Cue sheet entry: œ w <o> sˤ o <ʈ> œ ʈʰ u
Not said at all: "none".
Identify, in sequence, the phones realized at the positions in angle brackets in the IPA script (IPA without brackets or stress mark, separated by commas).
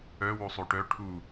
o, ʈ